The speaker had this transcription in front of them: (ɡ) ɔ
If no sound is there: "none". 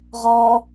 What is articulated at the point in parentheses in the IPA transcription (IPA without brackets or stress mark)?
ʁ